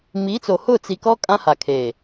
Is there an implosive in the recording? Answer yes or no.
no